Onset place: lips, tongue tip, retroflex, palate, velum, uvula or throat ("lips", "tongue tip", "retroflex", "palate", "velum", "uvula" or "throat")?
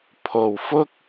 lips